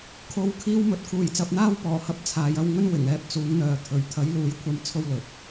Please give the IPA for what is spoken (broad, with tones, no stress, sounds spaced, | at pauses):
kʰ o˨ w kʰ iː˧ w m ɵ˨ t̚ kʰ uː˨˩ j t͡s ɐ˨ p̚ n̪ aː˧ w p ɔː˨˩ h ɐ˨˥ p̚ t͡sʰ aː˨˧ j ɐ˧ w ŋ ɵ˥ n w ɪ˨˩ ŋ ɛː˧ p̚ t͡s uː˨˧ ŋ n̪ œː˨ t̪ʰ ɵ˨˥ ɥ t̪ʰ ɐ˨˥ j l uː˨˥ j kʷʰ ɐ˧ m t͡sʰ o˧ w l ɵ˨˥ t̚